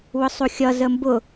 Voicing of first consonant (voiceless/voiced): voiced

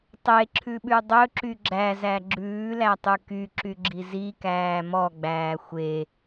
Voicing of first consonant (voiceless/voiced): voiceless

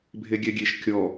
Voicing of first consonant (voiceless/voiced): voiced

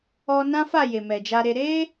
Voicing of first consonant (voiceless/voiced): voiced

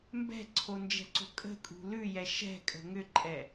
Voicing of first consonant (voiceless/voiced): voiced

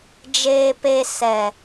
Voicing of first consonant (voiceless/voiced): voiced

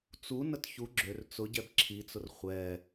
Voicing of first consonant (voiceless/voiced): voiceless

